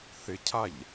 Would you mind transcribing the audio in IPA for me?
θɪcʰaʎ

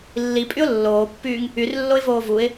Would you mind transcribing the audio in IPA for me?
lːipʼyʊ̯ lːoːpːyːŋ | yrlːoɪ̯voː vuɪ̯

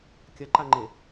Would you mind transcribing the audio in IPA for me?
kʲɐǃaŋ͡ǃe

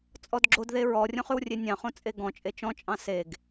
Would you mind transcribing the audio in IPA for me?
t͡sʼɔdɡ͡ǁodðe ɹɔrʲõχ ʉwrʲenʲɑ̃χõ t͡sʼeɡɔ̃t͡ʃʼe t͡ʃɔ̃t͡ʃʼɑ̃ seɡ

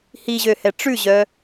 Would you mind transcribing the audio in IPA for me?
hiʑøhɛ ʈ͡ʂʉʑœ

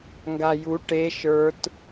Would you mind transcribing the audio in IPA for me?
ŋɡaju ʈe ʃə˞t

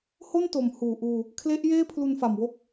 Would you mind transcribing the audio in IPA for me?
ho˥˩nto˩˦m huː˨˩ʔuː˧ | kʰle˦˥ʔjeː˥˩ pʰlu˧nfa˨˩mwo˥˩k̚

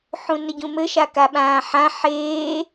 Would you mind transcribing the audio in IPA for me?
ħũnəɟũmɘ ʃakaɓãːħã ħeː

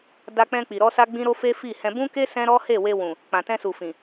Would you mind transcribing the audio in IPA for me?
da˧k͡pɛ̃˧k͡pi˨ɾɔ˧ sa˦ɡ͡bĩ˦ɾo˦fe˦ fi˦˨hɛ̃˧ bũ˦ke˦ sɛ̃˦ɾɔ˦ he˦˨we˧wũ˨ | k͡pã˨tɛ̃˧su˨fĩ˨

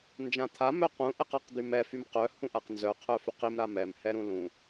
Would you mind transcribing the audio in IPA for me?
nd͡ʒãt̪ʰa mœqũ ʔɛqaqd̪ymɛ fymqœ hũʔaqnzœ qʰœfyqim ɾamɛm hɛɾũlũ

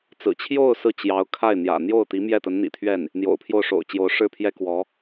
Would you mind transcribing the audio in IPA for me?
t͡sɹ̩˨˩t͡ɕʰjo˥˧ʊ̯ sɹ̩˥˩t͡ɕjɑ˧˥ʊ̯ kʰa˥˩ɪ̯n̪jä̰˨˩ n̪jo˥˩ʊ̯t̪i˧˥mjɛ˥˩t̪ə˧˥n n̪ḭ˨˩t̪ʰɥɛ˥˩n | n̪jo̰˨˩ʊ̯pʰjo˥˩ʊ̯ʂo̰˨˩ʊ̯t͡ɕjo˧˥ʊ̯ ʂɻ̩˥pʰjɛ˥kwɔ˧˥

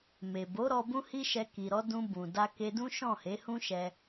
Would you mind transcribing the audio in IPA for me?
me˨bo˨˦ ɾɔ˧bũ˦hi˦ ʃɛ˧ki˨ɾɔ˨˦ dũ˧bũ˨ da˧ke˧dũ˦ ʃɔ̃˦˨he˨˦hũ˦ ʃɛ˧

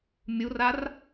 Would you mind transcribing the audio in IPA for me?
mʲurar

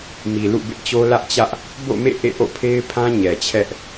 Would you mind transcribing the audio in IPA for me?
mi˨lṵ˦˨bɪ˦ʔt͡ɕo˦ lä˦ʔt͡ɕä˦ʔ | bo̰˦˨mḛ˦˨ ʔḛ˦˨ʔo̰˦˨pʰe˦ɪ̯pʰã˦ ɲɛ˨t͡ɕʰɛ˦ʔ

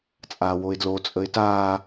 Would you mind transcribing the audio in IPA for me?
t͡sʼaːwoɪ̯dlo t͡sʼəɪ̯taː

